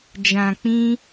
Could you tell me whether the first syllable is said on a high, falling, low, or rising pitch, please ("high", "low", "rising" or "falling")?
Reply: low